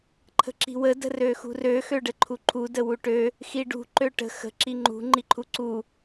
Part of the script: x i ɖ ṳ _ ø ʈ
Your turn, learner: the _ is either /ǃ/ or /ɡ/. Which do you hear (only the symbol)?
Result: ǃ